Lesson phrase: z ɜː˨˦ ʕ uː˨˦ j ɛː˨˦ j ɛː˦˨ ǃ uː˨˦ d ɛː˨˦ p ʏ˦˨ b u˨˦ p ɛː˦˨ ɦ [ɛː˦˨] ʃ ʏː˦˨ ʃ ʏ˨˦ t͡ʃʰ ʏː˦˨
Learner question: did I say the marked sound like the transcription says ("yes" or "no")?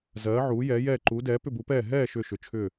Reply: yes